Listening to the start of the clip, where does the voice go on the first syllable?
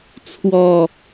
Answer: low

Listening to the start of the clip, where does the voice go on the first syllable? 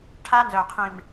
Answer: high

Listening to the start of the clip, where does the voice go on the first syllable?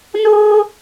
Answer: high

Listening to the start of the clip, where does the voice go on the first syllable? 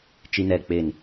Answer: high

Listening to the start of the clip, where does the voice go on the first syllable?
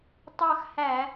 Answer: falling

